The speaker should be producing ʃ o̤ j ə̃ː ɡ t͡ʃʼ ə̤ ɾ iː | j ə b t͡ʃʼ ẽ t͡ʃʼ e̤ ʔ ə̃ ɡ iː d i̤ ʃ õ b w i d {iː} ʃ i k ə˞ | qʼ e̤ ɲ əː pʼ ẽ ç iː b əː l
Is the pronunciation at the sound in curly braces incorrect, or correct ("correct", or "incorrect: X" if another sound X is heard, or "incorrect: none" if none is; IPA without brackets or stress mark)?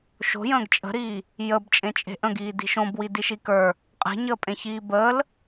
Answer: incorrect: i